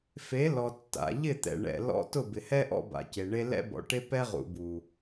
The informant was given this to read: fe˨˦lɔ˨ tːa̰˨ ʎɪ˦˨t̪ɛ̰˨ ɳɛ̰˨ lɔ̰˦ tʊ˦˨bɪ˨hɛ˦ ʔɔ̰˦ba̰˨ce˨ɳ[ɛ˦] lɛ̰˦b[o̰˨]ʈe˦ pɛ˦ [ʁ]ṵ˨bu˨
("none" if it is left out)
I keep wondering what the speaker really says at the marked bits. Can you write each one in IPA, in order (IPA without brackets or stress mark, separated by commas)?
e˦, ɔ̰˨, ʁ